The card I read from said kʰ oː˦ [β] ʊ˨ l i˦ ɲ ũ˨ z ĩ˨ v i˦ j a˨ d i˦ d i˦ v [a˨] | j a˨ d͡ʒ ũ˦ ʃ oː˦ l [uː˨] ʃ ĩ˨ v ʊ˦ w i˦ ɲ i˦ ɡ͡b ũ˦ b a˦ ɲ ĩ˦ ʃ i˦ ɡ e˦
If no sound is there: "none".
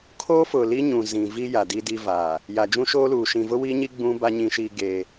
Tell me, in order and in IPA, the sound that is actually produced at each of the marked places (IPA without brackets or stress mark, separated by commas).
f, aː˨, uː˨